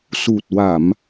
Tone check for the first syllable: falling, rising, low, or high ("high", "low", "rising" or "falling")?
low